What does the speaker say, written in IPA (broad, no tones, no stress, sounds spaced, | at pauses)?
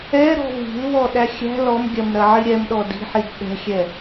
ɛ ɾ ɔ̤ v i̤ l β ɔ ɗ æ xʲ æ̤ l ɔ m ɡʲ ɐ m ɾ ɐ ʕ i ɾʲ ɛ m ɗ ɔ d i̤ ħ i d ɗ ɛ̤ xʲ ɛ